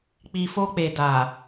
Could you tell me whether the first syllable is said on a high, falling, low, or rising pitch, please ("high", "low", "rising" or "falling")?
low